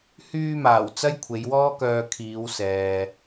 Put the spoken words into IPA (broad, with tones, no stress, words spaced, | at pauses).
hyː˧maː˨˩w t͡sɐ˥jkʷʰe˨˧jwɔː˥ kœː˧ kʰiː˨˧wsɛː˨